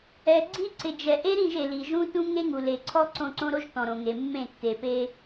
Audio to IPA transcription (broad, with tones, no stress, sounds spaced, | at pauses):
ɛ˨ ɡ͡ǀ i˦ ǀ ɪ˨ d͡ʒ ɛ˨ ʔ e˦ ɾ ĩ˦˨ ʒ e˨ l i˨ ʒ ũ˦ t ũ˦ ŋ e˦ ŋ u˨ l e˨ ǀʰ ɔ˦ ǀ õ˦˨ ǀ õ˦ ɾ o˦ ʒ t ɔ̃˨ ɾ õ˨ ŋ e˨ mː ẽ˦˨ tː e˨ p e˦